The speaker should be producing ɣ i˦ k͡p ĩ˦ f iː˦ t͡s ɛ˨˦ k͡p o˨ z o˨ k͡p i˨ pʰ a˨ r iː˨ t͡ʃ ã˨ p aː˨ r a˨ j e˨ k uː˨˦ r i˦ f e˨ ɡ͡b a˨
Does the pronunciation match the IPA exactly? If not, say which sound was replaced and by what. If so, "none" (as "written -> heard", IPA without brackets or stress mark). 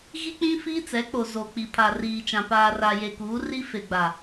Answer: none